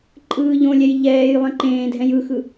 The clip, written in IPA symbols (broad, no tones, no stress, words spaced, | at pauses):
ǃʼɯːʎõlʲɛj ʎɛːj lˠẽǃẽːdʱɛ̃j ɯxɯ